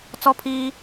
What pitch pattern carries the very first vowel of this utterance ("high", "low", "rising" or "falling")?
high